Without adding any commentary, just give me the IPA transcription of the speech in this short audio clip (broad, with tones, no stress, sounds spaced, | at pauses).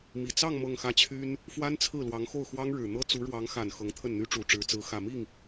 m i˨˩ t͡s ɑ˥˧ ŋ m ɤ˥˧ ŋ x ä˥˩ t͡ɕʰ y˥ n | f w a˥ n t͡sʰ ɹ̩˥˩ l w ɑ˧˥ ŋ x o˥˩ ʊ̯ x w ɑ˥ ŋ ɻ ɻ̩˨˩ n̪ ɤ˥ t͡s u˧˥ ɻ w ɑ˧˥ ŋ x a˨˩ n x ɤ˧˥ ŋ t̪ʰ ə˥˩ n n̪ y˥ ʈ͡ʂ u˨˩ ʈ͡ʂ ɻ̩˧˥ t͡s ɹ̩˧˥ x ä˨˩ m i˥˩ ŋ